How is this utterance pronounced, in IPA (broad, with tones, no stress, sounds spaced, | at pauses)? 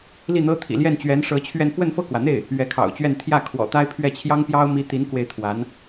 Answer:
l i˥˩ n̪ ɤ˥ t̪ʰ ḭ˨˩ l j ɛ˥˩ n t͡ɕ ɥ ɛ˧˥ n ʂ ɤ˧˥ t͡ɕʰ ɥ ɛ˥˧ n f w ə˥˧ n f ɤ˥˩ k w ä˩ n̪ e˥˩ ɪ̯ | ɥ ɛ˧˥ kʰ ɑ̰˨˩ ʊ̯ t͡ɕ ɥ ɛ˥˧ n t̪ʰ j ä˥˩ kʰ w ɔ̰˨˩ t̪ a˥ ɪ̯ pʰ ɥ ɛ˥˩ t͡ɕʰ j ɑ˥ ŋ p j ɑ˥ ʊ̯ m i˥ t̪ i˧˥ n k w e˧˥ ɪ̯ t̪ʰ w a˧˥ n